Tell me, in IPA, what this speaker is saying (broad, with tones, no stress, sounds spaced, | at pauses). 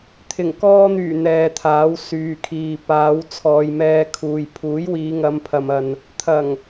t̪ʰ ɪ˨˩ ŋ k ɔː˧ n̪ yː˨˩ n̪ ɛː˨ t̪ʰ aː˨˥ w s yː˨ kʰ iː˨ p aː˨˧ w t͡sʰ ɔː˨ j m ɛː˧ kʰ uː˨ j pʰ uː˨˥ j w iː˨˧ ŋ ɐ˨˧ m pʰ ɐ˨ m ɐ˨ n | t̪ʰ ɐ˨˩ ŋ